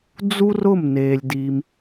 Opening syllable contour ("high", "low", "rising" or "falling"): high